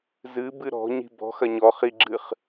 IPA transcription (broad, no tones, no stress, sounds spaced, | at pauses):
z ɨ b ɨ ɾ ɔ̤ ɲ i̤ b ɔ̤ x ɐ ɲ ɔ χ i ɡ͡ǁ ɨ χ